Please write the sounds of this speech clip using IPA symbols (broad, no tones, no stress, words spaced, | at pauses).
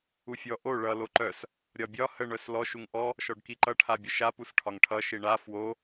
ufʲɔ ʔo ɭʌ loǃœs | ɾʲɒbʲɒ həɳ œslɔʃ uŋʔɔ | ʃɔɖkiǃʌ ʈʰabʲəʃa pusʈʰɒŋʈʰʌ ʃiɳa fwo